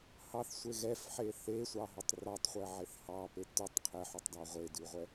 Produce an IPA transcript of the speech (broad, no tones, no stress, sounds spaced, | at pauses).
h ɑ θ sʷ e ɣ ɛ f ħ e θ e sʷ ɑ ɦ ʉ tˤ r ɑ tˤ χʷ ɛ ʕ e θ h ɑ p e t ʉ tˤ qʰ ɛ ħ ʉ tˤ d ɑ ʁʷ e d ʉ ʁʷ ɛ